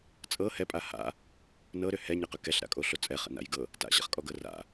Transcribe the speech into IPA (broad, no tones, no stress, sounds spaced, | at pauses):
t͡sʼ ɤ h ɛ pʼ a h a̰ | n ɤ ɾ ʏ h ɛ ɲ ə q ʏ k ɛ ɬ ɾ a̰ kʼ o ɬ o t͡sʼ ɛ χ ə̰ n a̰ j ɡ ɤ | t a̰ ɕ a̰ χ kʼ ɔ ɡ ɤ r a̰